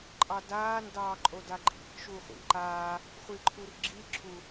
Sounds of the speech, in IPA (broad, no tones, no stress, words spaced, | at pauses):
ǃʼɑdaːn dɑːǃʼodaǃʼḭk ʃuχʷḭǃaː | χʷiǃʰurɡ͡ǁi ǁʰu